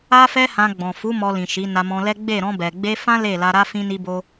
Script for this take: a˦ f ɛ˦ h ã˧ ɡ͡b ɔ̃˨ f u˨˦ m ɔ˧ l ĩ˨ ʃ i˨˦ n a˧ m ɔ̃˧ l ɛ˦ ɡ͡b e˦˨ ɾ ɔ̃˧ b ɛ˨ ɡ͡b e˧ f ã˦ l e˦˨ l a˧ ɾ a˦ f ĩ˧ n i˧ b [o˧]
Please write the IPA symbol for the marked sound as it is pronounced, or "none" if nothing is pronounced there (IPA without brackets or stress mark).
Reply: o˧